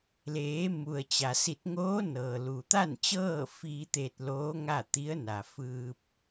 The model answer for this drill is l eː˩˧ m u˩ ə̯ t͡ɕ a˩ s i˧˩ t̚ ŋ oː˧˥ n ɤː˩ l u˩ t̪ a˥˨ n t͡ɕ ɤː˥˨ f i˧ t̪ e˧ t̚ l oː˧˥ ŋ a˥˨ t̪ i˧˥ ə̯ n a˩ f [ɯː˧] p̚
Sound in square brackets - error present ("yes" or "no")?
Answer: no